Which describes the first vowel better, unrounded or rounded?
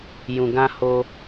rounded